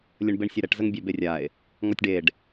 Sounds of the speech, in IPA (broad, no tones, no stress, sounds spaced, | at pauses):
lʲ ə ɳ b e ɳ sʲ ɛ ɾ ɛ ʈ z ə ŋ bʲ ɛ b e rʲ a e̯ | ŋ ɔ tʲ ɖ e ɖ